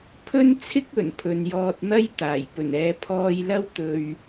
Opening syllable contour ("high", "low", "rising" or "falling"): high